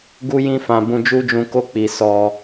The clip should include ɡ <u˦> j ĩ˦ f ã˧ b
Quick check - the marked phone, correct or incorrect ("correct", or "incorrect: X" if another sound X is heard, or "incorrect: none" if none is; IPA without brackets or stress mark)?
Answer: correct